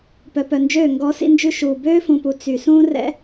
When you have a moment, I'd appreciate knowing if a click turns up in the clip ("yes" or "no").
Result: no